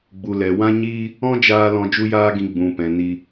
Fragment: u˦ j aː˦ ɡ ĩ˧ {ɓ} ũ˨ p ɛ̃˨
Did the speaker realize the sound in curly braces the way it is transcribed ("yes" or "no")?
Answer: no